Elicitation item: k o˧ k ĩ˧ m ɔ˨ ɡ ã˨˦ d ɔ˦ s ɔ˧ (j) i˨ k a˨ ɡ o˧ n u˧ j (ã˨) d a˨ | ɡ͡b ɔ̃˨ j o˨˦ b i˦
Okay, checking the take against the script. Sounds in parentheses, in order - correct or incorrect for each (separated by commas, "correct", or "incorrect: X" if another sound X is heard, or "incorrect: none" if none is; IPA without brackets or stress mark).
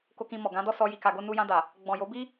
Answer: correct, incorrect: ã˧